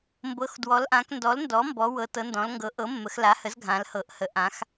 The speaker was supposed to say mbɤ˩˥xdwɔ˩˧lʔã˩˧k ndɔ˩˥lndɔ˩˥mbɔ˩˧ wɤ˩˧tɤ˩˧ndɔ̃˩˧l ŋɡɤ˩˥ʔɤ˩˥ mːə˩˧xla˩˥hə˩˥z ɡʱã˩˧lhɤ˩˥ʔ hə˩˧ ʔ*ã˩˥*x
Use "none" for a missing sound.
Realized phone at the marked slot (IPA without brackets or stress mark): ã˩˧